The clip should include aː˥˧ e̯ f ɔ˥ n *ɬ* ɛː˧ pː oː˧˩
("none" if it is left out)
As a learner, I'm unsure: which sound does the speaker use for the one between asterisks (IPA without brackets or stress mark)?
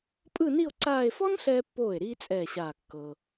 ɬ